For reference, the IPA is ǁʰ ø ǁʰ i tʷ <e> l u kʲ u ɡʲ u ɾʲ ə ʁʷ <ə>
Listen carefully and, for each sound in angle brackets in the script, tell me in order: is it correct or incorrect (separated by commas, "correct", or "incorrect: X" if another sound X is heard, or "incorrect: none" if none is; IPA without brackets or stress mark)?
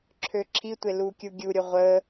correct, correct